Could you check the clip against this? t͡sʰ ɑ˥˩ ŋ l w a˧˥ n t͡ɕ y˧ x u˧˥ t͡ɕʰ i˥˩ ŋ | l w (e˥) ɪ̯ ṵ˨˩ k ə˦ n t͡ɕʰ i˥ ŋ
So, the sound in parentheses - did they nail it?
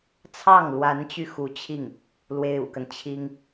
yes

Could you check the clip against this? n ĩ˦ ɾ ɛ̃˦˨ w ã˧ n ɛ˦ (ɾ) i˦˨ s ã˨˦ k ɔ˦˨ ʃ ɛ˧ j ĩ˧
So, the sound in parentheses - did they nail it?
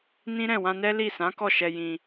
no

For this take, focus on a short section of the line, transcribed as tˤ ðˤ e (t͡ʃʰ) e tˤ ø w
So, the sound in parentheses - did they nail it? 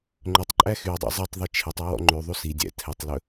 yes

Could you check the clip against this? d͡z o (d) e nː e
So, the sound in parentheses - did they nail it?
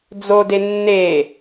yes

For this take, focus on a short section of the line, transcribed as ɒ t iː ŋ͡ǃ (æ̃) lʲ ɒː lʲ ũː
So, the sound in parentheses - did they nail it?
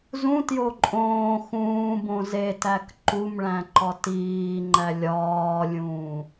no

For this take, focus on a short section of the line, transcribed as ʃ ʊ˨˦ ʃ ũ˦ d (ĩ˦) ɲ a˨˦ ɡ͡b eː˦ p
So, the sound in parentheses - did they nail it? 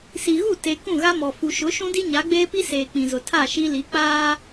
no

